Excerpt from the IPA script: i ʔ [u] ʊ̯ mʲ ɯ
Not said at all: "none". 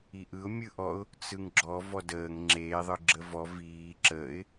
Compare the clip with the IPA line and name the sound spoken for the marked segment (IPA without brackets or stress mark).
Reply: ɯ